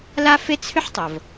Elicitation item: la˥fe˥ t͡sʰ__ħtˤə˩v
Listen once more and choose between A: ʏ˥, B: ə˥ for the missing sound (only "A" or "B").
A